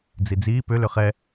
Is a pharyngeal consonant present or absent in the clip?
absent